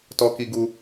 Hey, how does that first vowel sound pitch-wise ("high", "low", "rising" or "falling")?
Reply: high